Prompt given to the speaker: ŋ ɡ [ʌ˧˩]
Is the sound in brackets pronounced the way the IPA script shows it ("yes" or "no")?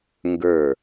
no